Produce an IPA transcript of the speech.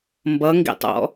mbʌŋɡḭtˤɔ̰

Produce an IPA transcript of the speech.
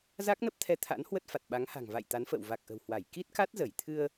za˦˥k̚nə˦˥p̚t̪ʰɛ˧ t̪ʰa̰˧˥n hwə˦˥t̚fa˨˩t̚ɓa˨˦ŋha̤˨˩ŋ va̰˧˨j t̪a˨˦nfə̰ː˧˨w va˨˩k̚ ʔə̤˨˩whwa˧˩j ki˦˥t̚ka˦˥t̚zə˧˩j t̪ʰɨ˧ə̯

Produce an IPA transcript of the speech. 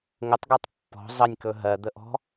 ŋətˤɡɜtˤ pːɔ̤ zˤənʲkɵ ɦɜd̪əʔɔ̤

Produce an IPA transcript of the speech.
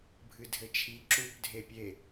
bʱɨdʱɘt͡ʃʰi ǁup dʱepʲe

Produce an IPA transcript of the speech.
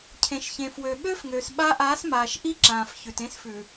cʰẽ˨ʃçẽ˨ fwø˨ ɓøː˦fŋøː˨s ɓa˦ ʔaː˨˦s maː˨ʃ ʔi˦ǁãː˨fçʉ˨t ẽ˦sfʉ˨

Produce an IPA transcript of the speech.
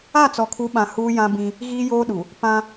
a˦˨t͡sɔ˨kʰu˨˦ɓã˨ huː˦jã˦ bĩ˦ | ɣiː˦joː˦ɗu˨ | pã˦

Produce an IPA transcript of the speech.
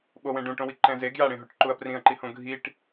ɓowẽ ɖũʈõwi ǃɛ̃ze ɡjaɽẽɦoʈ ǃuɐ̯prĩɐ̯ǃi hõɡʱiʈ

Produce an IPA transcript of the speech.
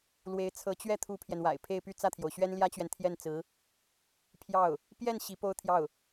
lwe˧˥ɪ̯ t͡sʰɤ˧˥t͡ɕɥɛ˥˩ t̪ʰu˥pʰjɛ˨nwa̰˨˩ɪ̯ pʰe˥˧ɪ̯py˥˧ t͡sä˥˩t̪ʰjo˩ʊ̯ɕɥɛ˥n ljä˥t͡ɕɥɛ˨nt̪ʰjɛ˥˩nt͡sɹ̩˧˥ | pʰjɑ˥˩ʊ̯ | pjɛ˥˩n ɕi˧˥po˥ʊ̯t̪ʰjɑ˥˩ʊ̯

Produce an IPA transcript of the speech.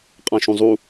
qʼãʃũzˤu

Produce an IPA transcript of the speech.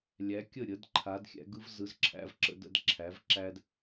lʲæ˨˥kʲə˥˩ ɾʲə˨˥dǃʰa˨˥dxʲæ̰˨˥ ɡɯ˦vzɯ˨˥zǁʰæ̰˦v ǁə̰˦də̰˦d ǁʰæ˨˥v ǁæ˦d

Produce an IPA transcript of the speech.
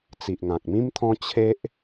t͡si˨ʔŋã˨k̚mĩ˦mt̪ʰɔ̃˦ t͡ɕʰe˦ʔ

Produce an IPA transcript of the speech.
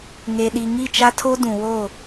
ŋe˨ɗi˨ ŋi˦˨t͡ʃa˦tʰo˦ dũ˨wo˦˨

